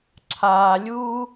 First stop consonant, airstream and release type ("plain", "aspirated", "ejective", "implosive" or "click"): click